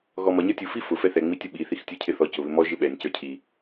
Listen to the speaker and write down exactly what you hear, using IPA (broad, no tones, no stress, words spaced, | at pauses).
ɣɔmʌ ɲə˞tʲu fifʊ fɛθɛ ŋ͡mitʲʊɓi θixtʲə˞cʰɪθɔ cʊβɪmɔ ʒɪɓɛnʲ cə˞cʰi